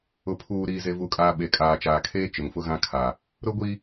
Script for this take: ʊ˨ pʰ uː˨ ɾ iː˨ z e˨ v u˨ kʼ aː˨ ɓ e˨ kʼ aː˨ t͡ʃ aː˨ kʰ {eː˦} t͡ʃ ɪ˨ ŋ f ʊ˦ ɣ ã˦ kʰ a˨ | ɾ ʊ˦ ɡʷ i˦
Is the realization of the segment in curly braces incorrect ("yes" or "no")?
no